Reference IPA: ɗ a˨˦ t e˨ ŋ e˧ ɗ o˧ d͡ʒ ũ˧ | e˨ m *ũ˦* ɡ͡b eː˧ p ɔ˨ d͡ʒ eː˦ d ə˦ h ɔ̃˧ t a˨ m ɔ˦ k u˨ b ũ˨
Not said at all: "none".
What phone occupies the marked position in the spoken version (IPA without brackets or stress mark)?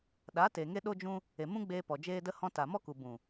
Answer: ũ˦